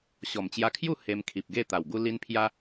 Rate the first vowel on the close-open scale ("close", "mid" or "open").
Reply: mid